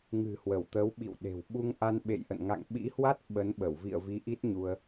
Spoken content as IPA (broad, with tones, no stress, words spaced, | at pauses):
ŋɨ̤˨˩hwə˧˩wt̪ə˨˦w ɓḭ˧˨wɗe̤˨˩w ɓu˧ŋ ʔa˧nɓḛ˧˨jʔə̰˧˨n ŋa̰˧˨ŋɓḭ˧˥hwa˦˥t̚ ɓə˨˦nɓə˧˩wvḭ˧˨ə̯vi˨˦ ʔi˦˥t̚ɲu˧ə̯